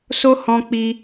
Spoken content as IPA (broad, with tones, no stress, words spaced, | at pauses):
so˦ hɔ̃˦k͡pi˦